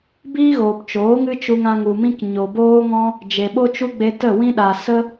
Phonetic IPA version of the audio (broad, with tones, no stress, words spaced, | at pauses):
biː˦ɣoː˨p t͡ʃoː˨˦ŋɨ˦t͡ʃu˧ŋã˧ ŋu˨mĩ˧k ɲo˨boː˦ŋɔ̃˦ | d͡ʒe˨ ɓo˦t͡ʃu˦ɡ͡be˧ tə˦˨wĩ˦ ɗa˨ sə˦